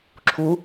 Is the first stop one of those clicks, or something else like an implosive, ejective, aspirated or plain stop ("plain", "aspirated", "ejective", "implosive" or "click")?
click